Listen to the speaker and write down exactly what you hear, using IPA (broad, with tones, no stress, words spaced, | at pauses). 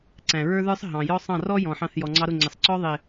ǀæ̃˨ɹə˞˦ðə˞˦sˤ ɦɑ̃˨ jɔ˧ sˤɑ̃˦˨rɔ˦jɔ̃˨ħɑ̃˧θ jɔ˨ŋ͡ǀɑ˧ɾʊ˦˨ŋ͡ǀɪ˨sˤ ǀɔ˧ðˤɪ˨